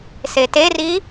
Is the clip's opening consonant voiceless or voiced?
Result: voiceless